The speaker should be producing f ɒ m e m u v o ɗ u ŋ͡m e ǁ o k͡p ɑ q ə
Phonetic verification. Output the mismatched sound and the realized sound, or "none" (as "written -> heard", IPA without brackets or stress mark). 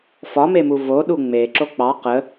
none